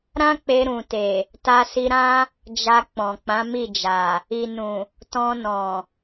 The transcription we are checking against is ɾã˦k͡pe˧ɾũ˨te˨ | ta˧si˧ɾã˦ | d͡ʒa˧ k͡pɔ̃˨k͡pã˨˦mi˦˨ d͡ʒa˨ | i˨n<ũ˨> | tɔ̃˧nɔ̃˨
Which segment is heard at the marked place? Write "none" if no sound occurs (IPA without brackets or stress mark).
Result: ũ˨